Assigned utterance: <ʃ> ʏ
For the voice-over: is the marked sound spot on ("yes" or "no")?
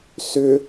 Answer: no